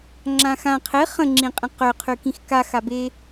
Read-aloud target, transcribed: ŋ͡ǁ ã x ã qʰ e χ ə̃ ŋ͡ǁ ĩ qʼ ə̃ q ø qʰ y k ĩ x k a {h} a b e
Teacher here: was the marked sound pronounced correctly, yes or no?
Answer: no